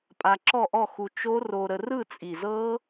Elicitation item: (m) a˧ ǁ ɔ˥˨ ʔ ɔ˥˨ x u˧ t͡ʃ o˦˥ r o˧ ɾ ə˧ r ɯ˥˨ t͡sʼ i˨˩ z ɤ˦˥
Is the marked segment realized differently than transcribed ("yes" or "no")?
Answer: yes